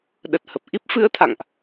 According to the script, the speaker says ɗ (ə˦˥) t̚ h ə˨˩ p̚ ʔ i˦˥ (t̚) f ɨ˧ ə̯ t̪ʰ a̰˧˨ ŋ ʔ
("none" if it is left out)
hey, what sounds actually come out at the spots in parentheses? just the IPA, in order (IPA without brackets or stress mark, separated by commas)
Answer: ə˨˩, p̚